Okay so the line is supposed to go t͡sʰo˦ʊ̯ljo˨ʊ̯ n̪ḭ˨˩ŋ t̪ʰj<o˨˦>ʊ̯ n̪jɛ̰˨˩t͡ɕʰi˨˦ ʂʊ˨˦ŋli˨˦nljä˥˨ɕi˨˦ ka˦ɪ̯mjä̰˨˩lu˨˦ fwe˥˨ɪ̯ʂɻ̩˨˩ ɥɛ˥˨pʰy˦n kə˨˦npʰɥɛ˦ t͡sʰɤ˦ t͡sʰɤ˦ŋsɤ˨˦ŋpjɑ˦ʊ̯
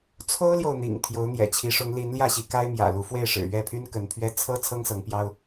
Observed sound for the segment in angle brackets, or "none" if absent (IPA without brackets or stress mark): o˨˦